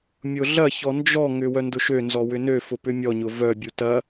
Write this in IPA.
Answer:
mʲ ʊ ɮ ɐ ç ɔ n d͡ʒ ɔ ŋ ʏ w œ n d ʊ ʃ ø n z ɔ w ʏ n ø f ʊ p ʏ mʲ ɔ ɲ ʊ v œ bʲ u t ɐ

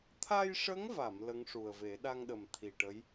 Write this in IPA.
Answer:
t̪ʰ a˧ j ʂ ə˧˥ ŋ v a˨˩˨ m l ə˧˥ ŋ ʂ u˨˩ ə̯ v e˨˩˦ ɗ a˧ ŋ ɗ ə˨˩ m t̪ʰ i˨˩ ʈ ə˧˥ j

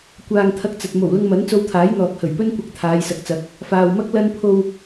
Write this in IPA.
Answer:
kʷ aː˧ ŋ t̪ʰ ɐ˧ k̚ t͡s ɐ˨ t̚ m o˨˩ w l ʊ˧ ŋ m ɐ˨˥ n t͡s o˧ w t̪ʰ aː˨˥ j n̪ ɔː˨ k̚ h ɵ˨˩ ɥ p ɵ˥ n kʷ ɐ˧ k̚ t̪ʰ aː˨˧ j s ɐ˨ k̚ t͡s ɐ˨˥ k̚ | f aː˨ w m ɐ˥ k̚ l ɐ˥ n pʰ o˧ w

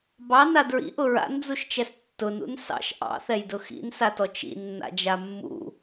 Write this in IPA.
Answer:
b ɑ n a d ɹ ḭ ʔ ʊ ɹ a̰ n d͡z u ʃ t͡ʃ ɛ s tː ʊ n ṵ n s ɑ̰ ʃ ʔ ɑ̰ θ ɛ j d ʊ x ḭ n s a t ɔ t͡ʃ ḭ nː a̰ d͡ʒ a mː ṵ

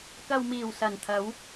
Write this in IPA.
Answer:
k ɐ˨ w m iː˨˩ w s ɐ˨˩ n t̪ʰ ɐ˨˧ w

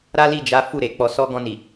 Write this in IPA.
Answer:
ɾ a˦ l i˦˨ d͡ʒ a˨˦ f u˦˨ ɾ e˨ k͡p ɔ˧ s ɔ˦ ɡ ɔ̃˧ n i˨

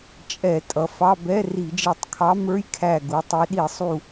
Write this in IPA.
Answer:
t͡ʃʼ ɛ˧˩˧ tʼ ʌ˩˧ f ɑ˧˥˧ b ɛ˧˥˧ r i˧˩˧ d͡ʒ i˧˩˧ tˤ kʰ ɑ˧˥ m ə˞˧˥˧ j kʰ æ˧˩ ɡ u˩˧ tˤ i˩˧ ɗ i˧˩˧ sˤ u˧˩

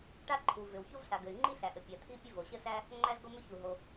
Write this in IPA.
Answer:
ʈ a˥ ǃʰ u˩ v ʏ˩ w ç o˥ v ɬ a˩ ɡ ɘ˩ y̯ ŋ͡ǃ i˥ ɬ æ˩ ʔ ɘ˩ pʲ a˩ t̪ʰ i˥ pʲ ɘ˥ v o˩ ɕ ɘ˥ s æ˥ | ŋ͡ǃ æ˥ z ɡ o˥ m ʏ˥ ç u˩ ɦ o˩

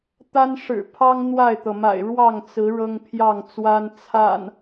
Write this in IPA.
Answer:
t̪ a˦ n ʂ ɻ̩˨˩ pʰ ɑ˦ ŋ n̪ w a˥˨ ɪ̯ t̪ ɤ˩ m a̰˨˩ ɪ̯ ɻ w ɑ˥˨ ŋ t͡s ɹ̩˨˦ ɻ ɤ˦ ŋ pʰ j ɑ˥˨ ŋ t͡s w a˦ n t͡sʰ a̰˨˩ n

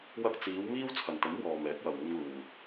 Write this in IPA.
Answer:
w ɐ˧ k̚ t͡s iː˨˧ w m iː˥ w t͡sʰ ɐ˨ n t̪ ɐ˨˥ m w ɔː˨ m ɛː˨˥ k̚ w ɐ˨ w uː˧ ŋ l uː˨

